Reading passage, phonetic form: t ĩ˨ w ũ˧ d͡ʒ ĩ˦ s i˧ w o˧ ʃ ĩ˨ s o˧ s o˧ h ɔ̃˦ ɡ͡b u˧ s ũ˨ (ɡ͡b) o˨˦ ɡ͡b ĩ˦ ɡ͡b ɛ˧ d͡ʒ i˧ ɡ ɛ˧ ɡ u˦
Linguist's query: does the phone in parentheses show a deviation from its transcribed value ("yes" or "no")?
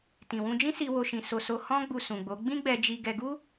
no